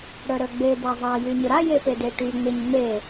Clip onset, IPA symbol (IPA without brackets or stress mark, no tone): ɽ